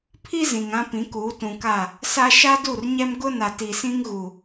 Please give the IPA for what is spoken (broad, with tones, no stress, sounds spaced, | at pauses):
pʰ i˦ z ĩ˨ ŋ ã˦ p ĩ˨˦ k uː˨˦ t ũ˨ k a˦˨ | s a˦ ʃ a˦ d u˦˨ r ɲ ɛ˦ m ɡ ʊ˦ n a˨ t i˨ s ĩ˦ ŋ ɣ u˨